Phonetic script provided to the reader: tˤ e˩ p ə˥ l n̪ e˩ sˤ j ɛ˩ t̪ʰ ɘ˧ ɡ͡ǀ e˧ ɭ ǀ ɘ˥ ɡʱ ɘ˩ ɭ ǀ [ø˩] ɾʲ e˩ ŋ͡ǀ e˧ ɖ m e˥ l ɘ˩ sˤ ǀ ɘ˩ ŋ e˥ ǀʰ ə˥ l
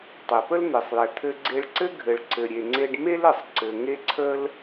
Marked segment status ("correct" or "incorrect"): incorrect